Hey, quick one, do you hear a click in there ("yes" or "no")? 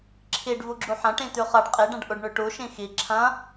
yes